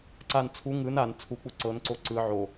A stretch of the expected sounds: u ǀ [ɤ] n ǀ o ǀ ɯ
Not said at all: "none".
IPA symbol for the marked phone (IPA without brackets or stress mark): ɤ